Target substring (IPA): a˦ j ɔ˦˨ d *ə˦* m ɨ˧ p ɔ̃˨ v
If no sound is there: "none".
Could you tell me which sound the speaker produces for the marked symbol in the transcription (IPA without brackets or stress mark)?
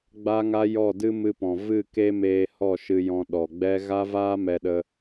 ɨ˦